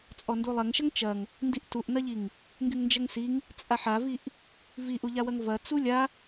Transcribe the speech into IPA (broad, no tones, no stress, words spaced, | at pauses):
t͡sʼɔndulˠɐŋʃɐŋ t͡ʃɐŋ | ndiʔtuʔnɐʎiŋ | ŋɡyŋnd͡ʒɐŋsiŋ | t͡sʼaħaviʔ | viʔuʎawɐŋ vɐ t͡sulʲa